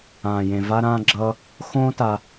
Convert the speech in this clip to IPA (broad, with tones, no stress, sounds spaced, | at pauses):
ãː˨ j ẽ˨ v a˦ ɾ ãː˦ ɡ͡ǁ ʌː˦ | x õː˦ t a˧